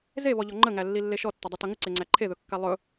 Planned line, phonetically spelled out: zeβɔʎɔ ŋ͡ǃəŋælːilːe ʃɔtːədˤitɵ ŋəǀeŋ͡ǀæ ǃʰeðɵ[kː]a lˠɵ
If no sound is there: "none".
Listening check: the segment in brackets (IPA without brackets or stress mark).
kː